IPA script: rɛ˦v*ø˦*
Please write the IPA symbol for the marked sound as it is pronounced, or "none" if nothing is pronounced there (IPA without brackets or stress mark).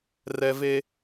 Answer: e˦